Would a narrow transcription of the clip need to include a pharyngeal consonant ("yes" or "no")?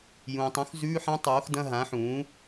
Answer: yes